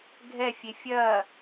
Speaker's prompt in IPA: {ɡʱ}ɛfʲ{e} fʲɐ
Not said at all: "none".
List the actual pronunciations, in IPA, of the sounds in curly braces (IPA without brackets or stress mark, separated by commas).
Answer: ɡʱ, e